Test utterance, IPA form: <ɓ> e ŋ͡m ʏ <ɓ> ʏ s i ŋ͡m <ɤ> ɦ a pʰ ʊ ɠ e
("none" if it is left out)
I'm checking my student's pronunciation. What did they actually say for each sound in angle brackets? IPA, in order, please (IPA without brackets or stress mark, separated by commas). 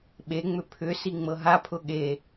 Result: ɓ, pʰ, ɤ